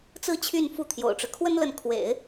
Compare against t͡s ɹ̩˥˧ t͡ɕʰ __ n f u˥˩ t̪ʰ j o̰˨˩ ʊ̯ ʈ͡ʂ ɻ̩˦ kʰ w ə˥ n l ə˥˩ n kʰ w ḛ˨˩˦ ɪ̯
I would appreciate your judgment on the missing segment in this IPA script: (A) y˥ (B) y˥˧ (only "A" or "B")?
B